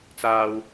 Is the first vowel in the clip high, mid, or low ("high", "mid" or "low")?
low